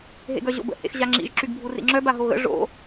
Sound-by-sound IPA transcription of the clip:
ɦ ḛ ɡ œ ʑ o̰ b ə̰ h ḛ x ʑ a ŋ͡ǁ ḭ ʒ ǁ y ɡ bʱ u r ḭ ŋ͡ǁ œ b a ɦ o ɣ ə̰ ʐ o̰

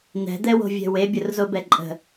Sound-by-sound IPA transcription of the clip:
n̪ ɛ̤ d̪ ɛ w o̤ vʲ ɛ̤ w e bʲ ʊ r z o b ɛ ǃʼ ə̤

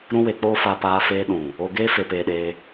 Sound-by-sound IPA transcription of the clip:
ɾ ũ˦ w e˧ k͡p oː˦ f a˧ p aː˧ f eː˧ ɗ ũ˨ | o˧ ɡ eː˦ f e˧ p eː˧ ɗ eː˧

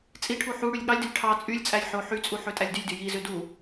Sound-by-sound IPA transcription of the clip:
t͡sʼ i ʈʰ u ħ u ɽ y lʲ ɠ ɑ lʲ d ø lʲ ʈʰ ɑ t͡sʼ y lʲ t͡sʼ æ lʲ ħ o ħ y t͡sʼ u ħ ø tʼ æ lʲ d y lʲ d y j i z ø d u

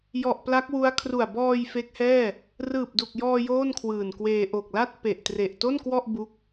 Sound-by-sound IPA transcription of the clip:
j ɔ˨˩ ʔ p l a˦˥ k̚ w u˦˥ a̯ kʰ r u˨˩ a̯ b ɔː˧ j f e˦˥ k̚ h ɛː˥˩ | r ɯː˨˩ p̚ d u˨˩ k̚ j ɔː˧ j oː˥˩ n kʰ w ɯː˨˩ n k w eː˧ ʔ o˨˩ k̚ l a˥˩ t̚ p e˨˩ ʔ t r e˨˩ ʔ t o˥˩ n k w ɔ˥˩ ʔ b u˦˥ k̚

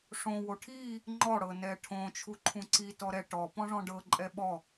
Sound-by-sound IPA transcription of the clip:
ʂ õ w o ʈʰ i | ŋ͡ǃ ɔ ɽ ɤ n ɛ ʈʰ õ t͡ʃʰ u ǃʰ ũ ǀ i t ɔ ɾ ɛ ʈ ɔ p ɔ̃ ʐ ɔ̃ ɖ ɤ ǃʼ ɛ ɓ ɔ

